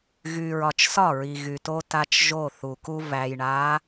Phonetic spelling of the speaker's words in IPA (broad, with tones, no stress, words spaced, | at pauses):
ɣy˨ɹɒ˨t͡ʃsɒ˦˨ ɹi˨ɣy˨to˦ ta˦t͡ʃʒo˦˨ θu˨ku˦ væ˨jɳa˨˦